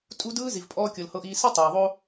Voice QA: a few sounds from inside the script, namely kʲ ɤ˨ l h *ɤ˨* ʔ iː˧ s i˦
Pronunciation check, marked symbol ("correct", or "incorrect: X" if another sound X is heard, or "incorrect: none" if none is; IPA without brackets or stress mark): incorrect: ɤ˧